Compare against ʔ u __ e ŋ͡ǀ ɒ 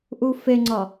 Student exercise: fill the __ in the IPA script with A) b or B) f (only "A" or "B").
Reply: B